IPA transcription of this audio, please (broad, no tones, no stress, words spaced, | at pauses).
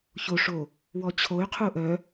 çoʂo | wɔt͡ɕʰoy̯qʰu ʔœ